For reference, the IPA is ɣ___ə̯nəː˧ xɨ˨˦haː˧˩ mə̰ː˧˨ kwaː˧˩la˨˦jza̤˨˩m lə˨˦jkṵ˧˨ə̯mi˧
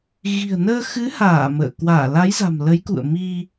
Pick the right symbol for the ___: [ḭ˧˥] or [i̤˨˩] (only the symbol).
i̤˨˩